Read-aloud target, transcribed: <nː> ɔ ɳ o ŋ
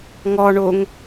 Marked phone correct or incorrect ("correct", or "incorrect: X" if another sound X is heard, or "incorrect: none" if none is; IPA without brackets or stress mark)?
incorrect: ŋ